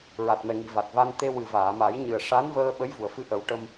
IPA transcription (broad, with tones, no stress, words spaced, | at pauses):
ɹa˨˩t̚mɛ˨˩ŋi˨˩˨ va˨˩t̚va˧n t̪e˧wɨ˨˩ vaː˨˩˨ma˨˩˦jɲɨ˨˩ə̯ ʂa˧˥nvəː˧ ɓə˧˥jvu˨˩˨ə̯fɨ˧˥ ʔə˨˩˦wʈə˧m